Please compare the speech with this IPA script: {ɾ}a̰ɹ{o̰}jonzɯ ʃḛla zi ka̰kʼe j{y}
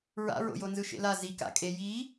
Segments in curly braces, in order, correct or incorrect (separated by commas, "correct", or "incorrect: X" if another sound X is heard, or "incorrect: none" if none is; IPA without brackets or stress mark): incorrect: ɹ, correct, incorrect: i